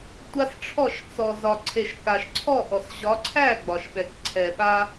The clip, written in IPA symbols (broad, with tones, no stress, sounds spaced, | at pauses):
tʷ a˦ s ʈ͡ʂʰ ɔ˦˨ ʃ t͡s ɔ˨ z ɒ˨ ǀʰ e˨ ʃ k a˨ ʃ ǀʰ ɔ˦˨ ʔ ɔ˨ s ʑ ɒ˨˦ ǀʰ æ˦˨ ɡ͡b ɒ˨ ʃ ɓ ɛ˨ k ǀʰ ɛ˨ ɓ a˦